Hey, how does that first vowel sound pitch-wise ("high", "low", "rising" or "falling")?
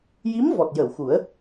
rising